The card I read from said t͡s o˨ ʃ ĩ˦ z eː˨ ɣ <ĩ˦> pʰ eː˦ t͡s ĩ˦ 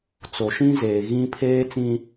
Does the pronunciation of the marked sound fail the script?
no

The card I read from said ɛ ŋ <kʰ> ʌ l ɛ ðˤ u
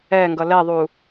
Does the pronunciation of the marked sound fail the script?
yes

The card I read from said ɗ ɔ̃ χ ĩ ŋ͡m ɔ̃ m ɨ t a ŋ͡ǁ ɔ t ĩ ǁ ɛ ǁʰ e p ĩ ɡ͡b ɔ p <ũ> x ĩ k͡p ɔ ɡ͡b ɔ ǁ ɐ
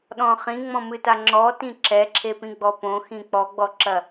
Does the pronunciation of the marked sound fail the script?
yes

